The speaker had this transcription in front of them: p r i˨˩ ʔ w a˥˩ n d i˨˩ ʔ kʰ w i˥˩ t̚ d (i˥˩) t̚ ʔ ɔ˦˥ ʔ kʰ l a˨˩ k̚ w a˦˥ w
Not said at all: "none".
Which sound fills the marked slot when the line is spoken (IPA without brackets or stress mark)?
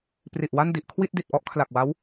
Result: i˨˩